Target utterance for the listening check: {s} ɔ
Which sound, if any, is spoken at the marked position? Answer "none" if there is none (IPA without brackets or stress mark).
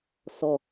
s